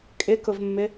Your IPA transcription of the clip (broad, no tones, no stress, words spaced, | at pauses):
kʼɪkʊvmːɪ